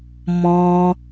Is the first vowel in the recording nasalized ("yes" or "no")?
yes